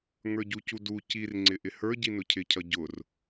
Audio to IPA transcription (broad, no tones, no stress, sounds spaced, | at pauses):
ŋ ə˞ ɟ u c u d u c i r ŋ͡ǀ ɪ ʔ ɪ h ə˞ ɟ i n ʊ cʰ ɪ cʰ ʌ ɟ ʊ r